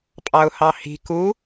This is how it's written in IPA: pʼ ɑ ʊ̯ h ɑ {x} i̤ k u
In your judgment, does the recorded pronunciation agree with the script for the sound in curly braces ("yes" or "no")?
no